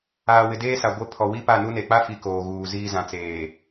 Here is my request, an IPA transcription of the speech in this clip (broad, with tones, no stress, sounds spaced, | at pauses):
aː˨ w ɪ˨ d eː˦ s a˨ ɡʷ e˦ pʰ ɔ˨ w i˦ p a˦˨ n u˦ n e˨ k͡p a˦ f i˨ k oː˨ ɣ uː˨ z iː˦ z ã˨ t͡s eː˨